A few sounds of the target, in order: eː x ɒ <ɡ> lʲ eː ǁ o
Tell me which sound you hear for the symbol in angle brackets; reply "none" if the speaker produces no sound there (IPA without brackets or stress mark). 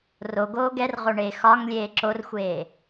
ŋ